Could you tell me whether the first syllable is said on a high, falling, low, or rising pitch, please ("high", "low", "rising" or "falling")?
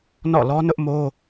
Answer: falling